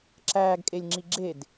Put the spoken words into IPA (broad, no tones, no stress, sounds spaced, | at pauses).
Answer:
ǁ æː ɡ kʼ e lʲ ŋ͡ǁ i ɡ͡ǁ e d